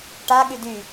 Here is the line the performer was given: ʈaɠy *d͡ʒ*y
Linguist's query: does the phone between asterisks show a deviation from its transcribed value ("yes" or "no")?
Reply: yes